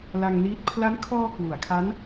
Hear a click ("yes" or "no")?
no